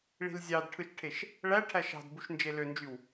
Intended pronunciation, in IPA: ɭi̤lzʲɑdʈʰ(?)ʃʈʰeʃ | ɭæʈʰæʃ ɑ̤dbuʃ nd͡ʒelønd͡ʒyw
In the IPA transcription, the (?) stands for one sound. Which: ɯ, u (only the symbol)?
ɯ